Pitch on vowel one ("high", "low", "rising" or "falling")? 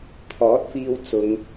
rising